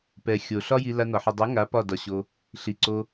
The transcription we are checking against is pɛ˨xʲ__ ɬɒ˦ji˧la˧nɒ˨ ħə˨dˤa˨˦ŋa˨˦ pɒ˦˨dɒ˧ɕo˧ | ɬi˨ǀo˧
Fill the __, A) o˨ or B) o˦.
A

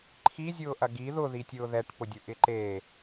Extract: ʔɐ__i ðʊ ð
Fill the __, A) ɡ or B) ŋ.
A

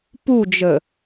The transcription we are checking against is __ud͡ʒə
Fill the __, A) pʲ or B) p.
B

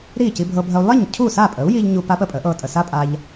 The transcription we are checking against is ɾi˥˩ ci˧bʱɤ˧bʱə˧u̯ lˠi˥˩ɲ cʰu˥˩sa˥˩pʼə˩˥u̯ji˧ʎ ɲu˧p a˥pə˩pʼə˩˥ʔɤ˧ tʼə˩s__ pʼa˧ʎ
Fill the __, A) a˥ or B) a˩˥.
A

